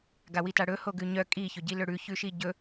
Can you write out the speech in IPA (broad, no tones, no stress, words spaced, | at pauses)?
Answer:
ɡawitaɽɵ hoɡʉɲœ kʼi çɵɟilɵɽʉ çʉʃiɟɵ